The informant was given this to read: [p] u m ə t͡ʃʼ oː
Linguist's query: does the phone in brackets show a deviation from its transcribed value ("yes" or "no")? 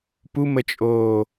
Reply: no